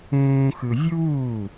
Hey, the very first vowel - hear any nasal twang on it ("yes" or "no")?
yes